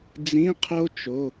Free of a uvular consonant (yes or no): no